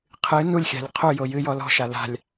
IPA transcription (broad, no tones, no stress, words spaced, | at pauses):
qʰɨ nulʲxʲa̤lʲ qʰujo jɨjɔ lɔ̤ʃa la̤lʲ